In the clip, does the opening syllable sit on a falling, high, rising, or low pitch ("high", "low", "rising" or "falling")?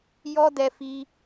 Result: high